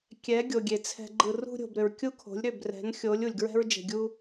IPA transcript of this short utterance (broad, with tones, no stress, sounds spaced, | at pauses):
kʲ ɛ˨˦ ɡʲ o˨ ɡʲ e˨ t͡sʰ ɛ̤˧ ɡ͡ǃ ɯ˧ r ṳ˧ ɾʲ o̤˨ b ɾ ʏ˨ ɹ kʲ u˦ kʰ o̤˨˦ lʲ ɾ ʏ˦˨ b r ɛ̤˨˦ n xʲ o˨˦ lʲ u˨ lʲ ɡ ɹ ɛ̤˦ ɹ d͡ʒ e̤˧ ɡʲ u˦